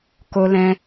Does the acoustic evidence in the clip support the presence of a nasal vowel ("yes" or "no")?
yes